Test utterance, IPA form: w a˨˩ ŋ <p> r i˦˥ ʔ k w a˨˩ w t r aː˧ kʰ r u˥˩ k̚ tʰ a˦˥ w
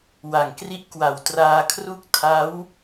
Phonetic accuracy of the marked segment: incorrect: k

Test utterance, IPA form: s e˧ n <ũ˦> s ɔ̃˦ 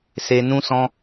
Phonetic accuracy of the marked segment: correct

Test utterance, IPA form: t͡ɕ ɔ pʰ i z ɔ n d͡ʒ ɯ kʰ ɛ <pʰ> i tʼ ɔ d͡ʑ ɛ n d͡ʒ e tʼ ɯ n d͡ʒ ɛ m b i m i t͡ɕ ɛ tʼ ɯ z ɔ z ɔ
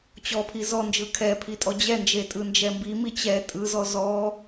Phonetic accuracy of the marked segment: correct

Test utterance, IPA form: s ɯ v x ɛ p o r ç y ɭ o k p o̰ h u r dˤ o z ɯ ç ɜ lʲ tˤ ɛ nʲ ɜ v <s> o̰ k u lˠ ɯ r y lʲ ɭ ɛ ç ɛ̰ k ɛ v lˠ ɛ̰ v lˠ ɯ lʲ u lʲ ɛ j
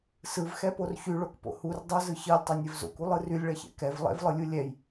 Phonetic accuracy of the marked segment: incorrect: z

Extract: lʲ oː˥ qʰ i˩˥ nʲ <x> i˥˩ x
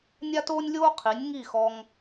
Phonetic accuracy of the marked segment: incorrect: ŋ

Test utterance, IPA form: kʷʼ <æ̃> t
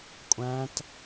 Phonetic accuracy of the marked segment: correct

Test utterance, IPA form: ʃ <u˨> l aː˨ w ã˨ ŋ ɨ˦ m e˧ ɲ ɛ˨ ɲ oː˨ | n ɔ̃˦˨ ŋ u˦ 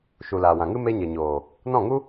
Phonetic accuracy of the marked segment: correct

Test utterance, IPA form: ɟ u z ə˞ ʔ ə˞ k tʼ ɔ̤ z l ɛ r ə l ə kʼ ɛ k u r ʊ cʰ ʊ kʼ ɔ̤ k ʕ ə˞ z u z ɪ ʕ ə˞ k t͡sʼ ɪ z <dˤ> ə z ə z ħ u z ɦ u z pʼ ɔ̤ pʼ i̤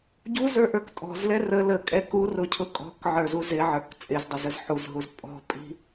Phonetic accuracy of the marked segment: correct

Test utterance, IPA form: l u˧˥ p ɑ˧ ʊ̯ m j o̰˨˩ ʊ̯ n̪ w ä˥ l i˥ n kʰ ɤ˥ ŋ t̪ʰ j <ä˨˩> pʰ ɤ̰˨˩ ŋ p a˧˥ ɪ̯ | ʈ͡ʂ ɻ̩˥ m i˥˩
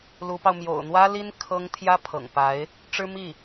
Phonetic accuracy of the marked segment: incorrect: ä˥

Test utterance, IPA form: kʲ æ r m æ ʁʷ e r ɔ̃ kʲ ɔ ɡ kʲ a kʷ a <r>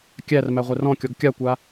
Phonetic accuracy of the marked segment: incorrect: none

